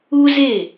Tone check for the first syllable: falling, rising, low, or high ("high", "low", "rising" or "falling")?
high